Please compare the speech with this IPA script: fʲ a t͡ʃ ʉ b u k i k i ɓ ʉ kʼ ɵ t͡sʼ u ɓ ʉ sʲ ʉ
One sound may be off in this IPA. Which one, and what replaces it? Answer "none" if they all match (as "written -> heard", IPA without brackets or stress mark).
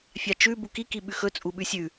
kʼ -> x